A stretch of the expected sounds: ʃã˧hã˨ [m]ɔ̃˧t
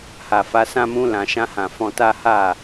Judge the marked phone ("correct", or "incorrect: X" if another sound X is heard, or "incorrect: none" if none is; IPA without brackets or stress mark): incorrect: f